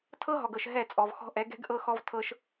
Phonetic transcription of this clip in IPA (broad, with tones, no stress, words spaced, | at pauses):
tʰɤ˦ɦɔ˨ɡ ɤ˨ʃ ɦɛ˦˨t͡sʼɔ˨vxɔ̤˦ʔɛ˨˦ ɡɛ̤˦ɡ ʔɤ˦xɔ˦vtʰɤ˦ʃ